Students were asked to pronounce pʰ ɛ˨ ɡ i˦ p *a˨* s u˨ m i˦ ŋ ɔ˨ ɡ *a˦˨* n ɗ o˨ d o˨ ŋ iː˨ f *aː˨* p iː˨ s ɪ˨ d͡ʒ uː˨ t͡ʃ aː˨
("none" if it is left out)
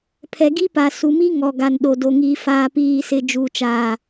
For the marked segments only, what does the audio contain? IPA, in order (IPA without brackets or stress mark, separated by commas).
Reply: a˨, a˨, aː˨